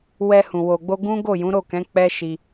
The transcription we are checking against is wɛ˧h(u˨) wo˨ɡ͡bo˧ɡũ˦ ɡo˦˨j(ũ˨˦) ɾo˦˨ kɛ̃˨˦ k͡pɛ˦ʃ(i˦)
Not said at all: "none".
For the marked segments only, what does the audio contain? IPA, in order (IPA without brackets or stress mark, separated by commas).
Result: ũ˨, ũ˨˦, i˧